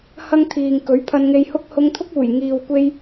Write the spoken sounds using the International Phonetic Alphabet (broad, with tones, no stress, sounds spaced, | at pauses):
h ɐ˥ ŋ t̪ʰ iː˨ ŋ k ɵ˨˥ ɥ pʰ ɐ˧ n ŋ e˧ j h ʊ˥ k̚ h ʊ˧ ŋ t̪ʰ ʊ˥ k̚ uː˨˩ j ŋ iː˨ w kʷ e˧ j